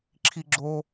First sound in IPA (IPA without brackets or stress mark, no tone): ǁʰ